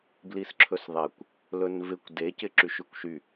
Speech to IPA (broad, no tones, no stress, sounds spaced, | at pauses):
b l i s ǁʰ ɵ s ðˤ e kʷ | l ɵ n v ɪ kʷ d e c ɪ ǁ y ʃ y kʷ ʃ y